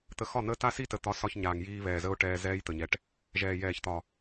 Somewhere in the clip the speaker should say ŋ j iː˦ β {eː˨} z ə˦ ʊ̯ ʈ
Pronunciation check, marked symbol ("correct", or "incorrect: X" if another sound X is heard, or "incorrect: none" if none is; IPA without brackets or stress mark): incorrect: ɛː˨